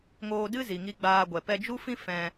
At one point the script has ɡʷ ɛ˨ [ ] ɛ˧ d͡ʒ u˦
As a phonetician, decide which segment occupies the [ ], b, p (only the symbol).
p